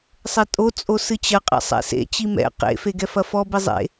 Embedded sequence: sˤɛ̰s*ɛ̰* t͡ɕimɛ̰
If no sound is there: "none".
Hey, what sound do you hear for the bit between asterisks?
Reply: ḛ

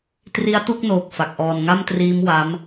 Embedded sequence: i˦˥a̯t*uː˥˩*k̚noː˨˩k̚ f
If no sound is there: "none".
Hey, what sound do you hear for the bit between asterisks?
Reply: u˥˩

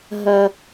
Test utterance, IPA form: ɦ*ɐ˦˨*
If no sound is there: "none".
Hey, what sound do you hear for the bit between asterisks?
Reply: ɐ˦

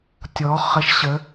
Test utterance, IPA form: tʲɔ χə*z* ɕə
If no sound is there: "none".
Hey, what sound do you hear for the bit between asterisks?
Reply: ʃ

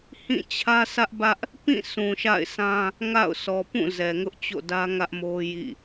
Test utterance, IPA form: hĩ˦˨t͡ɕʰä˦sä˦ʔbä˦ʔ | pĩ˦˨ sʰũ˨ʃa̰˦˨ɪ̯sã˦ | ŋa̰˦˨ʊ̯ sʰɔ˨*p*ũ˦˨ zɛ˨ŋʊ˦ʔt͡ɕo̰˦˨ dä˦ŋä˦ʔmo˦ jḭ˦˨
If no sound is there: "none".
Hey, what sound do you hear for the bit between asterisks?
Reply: p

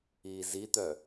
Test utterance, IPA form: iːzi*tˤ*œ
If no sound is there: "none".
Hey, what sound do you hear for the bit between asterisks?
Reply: t̪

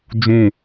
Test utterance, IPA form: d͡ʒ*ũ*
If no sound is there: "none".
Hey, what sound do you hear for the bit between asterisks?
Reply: ũ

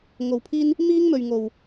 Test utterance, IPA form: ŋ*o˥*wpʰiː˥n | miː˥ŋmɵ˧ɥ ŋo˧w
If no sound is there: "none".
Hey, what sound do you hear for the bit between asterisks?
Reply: o˧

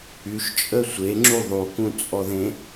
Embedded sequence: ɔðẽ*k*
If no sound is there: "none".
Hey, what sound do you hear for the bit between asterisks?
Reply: none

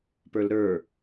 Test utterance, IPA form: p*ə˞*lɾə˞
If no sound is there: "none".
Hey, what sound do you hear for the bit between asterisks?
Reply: ə˞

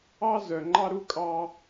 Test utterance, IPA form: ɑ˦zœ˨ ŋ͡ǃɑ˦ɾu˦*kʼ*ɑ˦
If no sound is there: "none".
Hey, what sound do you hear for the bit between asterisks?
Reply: kʼ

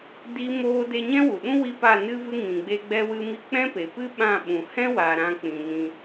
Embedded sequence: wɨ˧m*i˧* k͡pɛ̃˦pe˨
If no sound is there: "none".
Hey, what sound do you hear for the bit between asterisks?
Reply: i˧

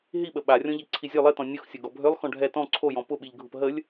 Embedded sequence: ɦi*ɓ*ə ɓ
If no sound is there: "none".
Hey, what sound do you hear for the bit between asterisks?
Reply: ɓ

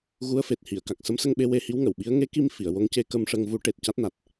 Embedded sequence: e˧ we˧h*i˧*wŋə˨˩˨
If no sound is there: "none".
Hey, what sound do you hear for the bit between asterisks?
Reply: i˧˥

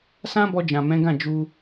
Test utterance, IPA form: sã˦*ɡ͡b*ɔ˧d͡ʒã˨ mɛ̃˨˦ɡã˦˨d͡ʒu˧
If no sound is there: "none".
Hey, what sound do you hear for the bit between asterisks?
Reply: b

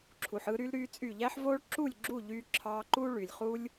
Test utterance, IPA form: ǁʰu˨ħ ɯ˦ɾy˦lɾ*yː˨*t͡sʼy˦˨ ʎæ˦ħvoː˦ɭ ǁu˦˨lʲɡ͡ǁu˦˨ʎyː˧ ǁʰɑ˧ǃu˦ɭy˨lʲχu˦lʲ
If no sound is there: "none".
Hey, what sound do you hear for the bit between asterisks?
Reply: yː˦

